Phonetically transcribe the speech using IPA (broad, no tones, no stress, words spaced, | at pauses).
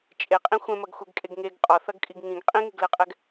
t͡ʃʼeqʼĩ xʷɛ̃mɐɡxʷɛɡkʼeɡ ŋeɡ qʼɒθɐɡkʼiɡ ŋĩɡ qʼĩŋeɡlɛqʼɛɡ